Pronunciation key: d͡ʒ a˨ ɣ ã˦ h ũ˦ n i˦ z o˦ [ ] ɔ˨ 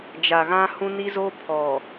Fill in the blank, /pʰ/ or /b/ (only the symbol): pʰ